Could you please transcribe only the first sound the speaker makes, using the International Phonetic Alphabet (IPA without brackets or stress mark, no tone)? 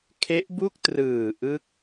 kʰ